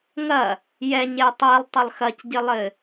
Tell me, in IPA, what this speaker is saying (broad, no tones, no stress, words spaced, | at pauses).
ŋɐ | jɛɲe tˤɛlˠtˤɐlˠ xɐcɟɘlˠɘ